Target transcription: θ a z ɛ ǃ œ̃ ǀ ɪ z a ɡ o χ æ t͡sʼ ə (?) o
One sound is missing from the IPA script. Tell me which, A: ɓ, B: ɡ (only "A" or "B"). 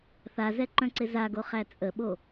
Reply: A